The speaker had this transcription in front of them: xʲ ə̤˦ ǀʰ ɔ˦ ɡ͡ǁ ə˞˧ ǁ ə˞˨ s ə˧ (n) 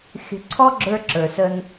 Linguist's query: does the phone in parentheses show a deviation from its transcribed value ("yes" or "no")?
no